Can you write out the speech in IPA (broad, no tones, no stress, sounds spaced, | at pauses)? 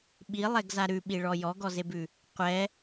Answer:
ɓ i lˠ ɛ ɡ z a ɾ ʉ ɓ i ɭ ɔ j ɔ ɡ ɔ z e b ʉ | qʷ ɛ